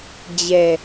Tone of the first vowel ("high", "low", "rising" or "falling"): low